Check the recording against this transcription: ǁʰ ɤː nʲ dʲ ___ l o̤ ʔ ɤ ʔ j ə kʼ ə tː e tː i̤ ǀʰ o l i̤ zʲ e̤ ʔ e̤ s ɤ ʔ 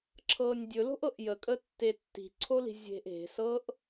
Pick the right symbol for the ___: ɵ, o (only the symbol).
ɵ